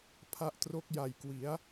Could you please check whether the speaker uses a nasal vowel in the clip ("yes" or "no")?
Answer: no